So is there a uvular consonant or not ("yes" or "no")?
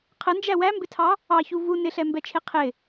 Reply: yes